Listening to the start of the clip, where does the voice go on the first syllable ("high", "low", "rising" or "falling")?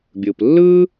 low